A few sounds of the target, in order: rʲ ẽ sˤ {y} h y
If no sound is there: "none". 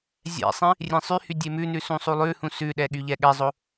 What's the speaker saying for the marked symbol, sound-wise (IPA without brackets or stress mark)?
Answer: y